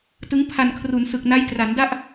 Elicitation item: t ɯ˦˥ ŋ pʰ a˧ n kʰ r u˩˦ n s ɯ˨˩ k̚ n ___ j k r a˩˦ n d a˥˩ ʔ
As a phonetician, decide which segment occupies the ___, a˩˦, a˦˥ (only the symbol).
a˦˥